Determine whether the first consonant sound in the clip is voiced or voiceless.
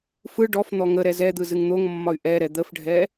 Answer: voiceless